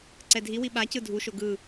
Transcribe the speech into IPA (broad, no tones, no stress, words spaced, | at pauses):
ǀɛdʱiwi ɓacɯ dʱuʃo ɡɯ